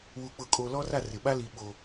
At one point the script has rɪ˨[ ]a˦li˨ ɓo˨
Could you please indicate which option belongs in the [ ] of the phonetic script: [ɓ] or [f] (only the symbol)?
ɓ